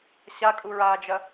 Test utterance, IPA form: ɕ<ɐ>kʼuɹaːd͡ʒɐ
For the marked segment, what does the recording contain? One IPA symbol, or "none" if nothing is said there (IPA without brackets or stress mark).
a